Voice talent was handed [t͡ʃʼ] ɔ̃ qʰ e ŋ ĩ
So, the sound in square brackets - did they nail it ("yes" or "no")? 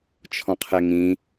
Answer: no